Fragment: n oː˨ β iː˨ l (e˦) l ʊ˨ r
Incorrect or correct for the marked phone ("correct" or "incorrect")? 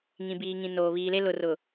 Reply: correct